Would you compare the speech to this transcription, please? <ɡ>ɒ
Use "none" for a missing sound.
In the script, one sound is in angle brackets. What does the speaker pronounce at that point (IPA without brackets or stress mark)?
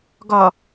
ɡ